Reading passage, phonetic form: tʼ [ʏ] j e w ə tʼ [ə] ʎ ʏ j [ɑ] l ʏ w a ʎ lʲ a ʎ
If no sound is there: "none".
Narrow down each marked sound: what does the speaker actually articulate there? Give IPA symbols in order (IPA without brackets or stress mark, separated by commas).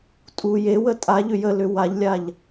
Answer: u, a, ə